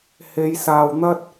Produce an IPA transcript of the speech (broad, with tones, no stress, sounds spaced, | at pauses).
h e˨˧ j s aː˨ w n̪ ɐ˥ t̚